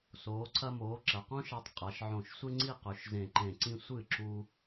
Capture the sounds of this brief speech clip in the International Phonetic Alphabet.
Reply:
s oː˩˧ ǀʰ ɐ˧ m oː˩˧ ǁ ɐ˩˧ q õ˥ ʃ a˧ tˤ qʼ a˩˧ ʃ ʕ õ˧˩ ʃ sʷ e˥ ŋ͡ǀ i˥˧ q ɵ˩˧ ʃ z ẽ˧˩ ǃ ẽ˧˩ ǀ ĩ˥˧ sʷ ɨ˥˩ ǁ u˧

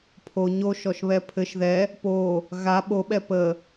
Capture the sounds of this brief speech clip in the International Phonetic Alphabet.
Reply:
pʰ o ɲ o ʃ ɔ ʃ β ɛ pʰ ɘ ʃ ð ɛ | p o | ɣ a ɓ o ɓ ɛ p ə

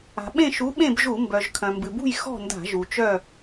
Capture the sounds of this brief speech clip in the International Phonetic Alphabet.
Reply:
a̤˩ ɓ ẽ˥˨ ʃ u˨˥ ɓ ẽ˥˨ b ʒ u˧˩˧ m b œ˩ ʒ kʰ œ̃˩ m b ɨ˩ b ṳ˥˨ j x ɔ̤˥˨ n d a̤˧˩˧ ʒ u˩ t͡ʃ œ˥˨

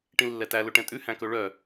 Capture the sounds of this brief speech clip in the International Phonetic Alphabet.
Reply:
ʈ ĩ lː ɛ t æ l ɵ ʈ ɛ̃ tʼ ʉ h æ̃ k ɵ ɭ œ

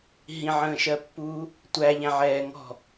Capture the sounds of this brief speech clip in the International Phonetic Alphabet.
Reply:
ɦ ĩ ʕ ə̃ː ʃ ɜ pː uː | tʷ æ ʎ æ̃ ʕ ɛː ŋ ɔ̤

